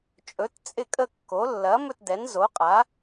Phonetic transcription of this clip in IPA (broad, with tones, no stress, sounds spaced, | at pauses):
t͡ʃʼ ɵ˨˥ t t͡sʼ ɪ˥˧ kʼ ə˥˧ kː o˨˥ lː ɐ˨˥ m ɵ˥˧ t d ɛ˨˥ n z o˨˥ qʼ a˨˥